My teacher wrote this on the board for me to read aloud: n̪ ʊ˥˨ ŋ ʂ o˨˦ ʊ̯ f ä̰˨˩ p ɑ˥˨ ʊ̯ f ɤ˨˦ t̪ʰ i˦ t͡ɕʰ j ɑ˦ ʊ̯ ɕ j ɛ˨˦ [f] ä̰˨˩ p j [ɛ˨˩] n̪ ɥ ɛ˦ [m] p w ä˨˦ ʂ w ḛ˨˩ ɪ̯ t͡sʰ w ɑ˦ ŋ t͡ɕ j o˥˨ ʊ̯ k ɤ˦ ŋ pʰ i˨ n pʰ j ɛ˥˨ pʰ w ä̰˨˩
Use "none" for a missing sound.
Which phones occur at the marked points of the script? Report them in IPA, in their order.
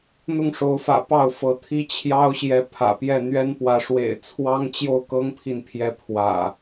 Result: pʰ, ɛ˥˨, n

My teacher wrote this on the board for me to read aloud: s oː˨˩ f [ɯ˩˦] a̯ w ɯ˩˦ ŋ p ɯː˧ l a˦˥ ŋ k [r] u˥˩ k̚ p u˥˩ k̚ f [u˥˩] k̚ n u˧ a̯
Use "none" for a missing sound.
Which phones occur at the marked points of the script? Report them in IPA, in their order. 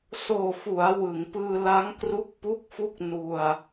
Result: u˩˦, r, u˥˩

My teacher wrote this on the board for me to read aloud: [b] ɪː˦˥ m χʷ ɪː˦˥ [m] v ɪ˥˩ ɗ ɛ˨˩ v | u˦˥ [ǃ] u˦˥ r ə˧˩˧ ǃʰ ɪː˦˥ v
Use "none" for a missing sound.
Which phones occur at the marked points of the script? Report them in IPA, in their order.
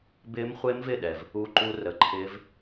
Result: b, m, ǃ

